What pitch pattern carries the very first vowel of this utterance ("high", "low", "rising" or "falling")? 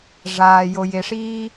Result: low